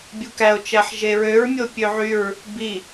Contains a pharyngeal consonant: yes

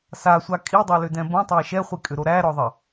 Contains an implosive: no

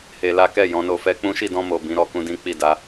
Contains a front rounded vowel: no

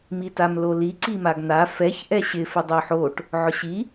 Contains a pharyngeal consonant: yes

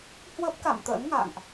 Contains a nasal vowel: no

